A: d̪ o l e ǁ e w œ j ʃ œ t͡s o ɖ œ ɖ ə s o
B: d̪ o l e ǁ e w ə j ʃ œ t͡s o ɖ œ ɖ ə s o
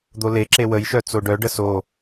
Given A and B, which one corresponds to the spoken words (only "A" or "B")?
B